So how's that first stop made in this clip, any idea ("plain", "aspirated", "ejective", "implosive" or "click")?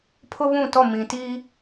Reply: aspirated